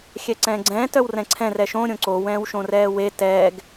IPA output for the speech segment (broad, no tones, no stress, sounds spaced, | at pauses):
xʲ ɛ ǀ ɛ̃ː ɡ͡ǀ ɛ̃ː t œ w r ɛ̃ ǀʰ ɛ̃ r ɛ ʃ õ ɾʲ õ ǀ o w ɛ̃ː w ʃ õ r ɛː w e t ɛː ɡ